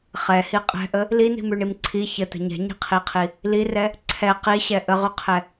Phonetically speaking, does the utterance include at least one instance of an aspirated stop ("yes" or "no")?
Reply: yes